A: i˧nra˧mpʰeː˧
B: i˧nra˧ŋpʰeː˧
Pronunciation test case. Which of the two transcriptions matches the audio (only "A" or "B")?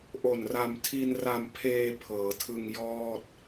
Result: A